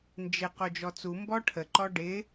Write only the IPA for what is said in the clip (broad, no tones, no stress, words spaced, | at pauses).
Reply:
nd͡ʒɪ qod͡ʒɔt͡su mbɔʈʰə ǃɔɖɪ